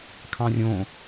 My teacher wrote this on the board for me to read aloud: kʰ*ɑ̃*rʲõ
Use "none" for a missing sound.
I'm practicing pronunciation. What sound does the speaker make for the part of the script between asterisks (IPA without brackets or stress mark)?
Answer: ɑ̃